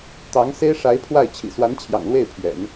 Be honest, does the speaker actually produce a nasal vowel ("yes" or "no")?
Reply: no